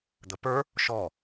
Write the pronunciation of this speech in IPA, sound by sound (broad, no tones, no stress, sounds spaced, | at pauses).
d̪ ə p ə˞ | ʃ ɔ